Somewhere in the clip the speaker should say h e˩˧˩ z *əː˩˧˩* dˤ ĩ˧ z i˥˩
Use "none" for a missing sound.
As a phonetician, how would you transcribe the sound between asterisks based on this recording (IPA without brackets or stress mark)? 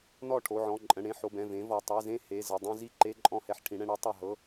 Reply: ə˩˧˩